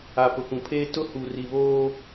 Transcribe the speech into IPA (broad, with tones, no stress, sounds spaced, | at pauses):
a˨ p ʊ˨ k ũ˨ pʰ eː˦ t ʊ˦ h u˨ r i˨ β oː˦